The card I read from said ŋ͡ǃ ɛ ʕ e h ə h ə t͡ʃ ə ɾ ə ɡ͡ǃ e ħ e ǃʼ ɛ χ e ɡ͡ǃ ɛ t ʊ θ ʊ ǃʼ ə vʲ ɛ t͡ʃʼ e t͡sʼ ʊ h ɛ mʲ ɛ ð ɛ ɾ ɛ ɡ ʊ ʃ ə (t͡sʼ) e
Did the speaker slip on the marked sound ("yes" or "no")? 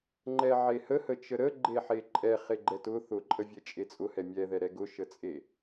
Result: no